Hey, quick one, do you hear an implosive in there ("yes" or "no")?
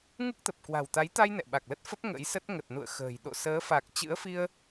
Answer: yes